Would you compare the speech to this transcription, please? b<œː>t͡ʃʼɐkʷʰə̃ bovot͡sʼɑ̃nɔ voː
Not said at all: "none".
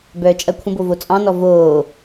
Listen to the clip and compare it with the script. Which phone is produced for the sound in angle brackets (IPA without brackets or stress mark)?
œː